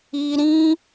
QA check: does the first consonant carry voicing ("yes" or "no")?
yes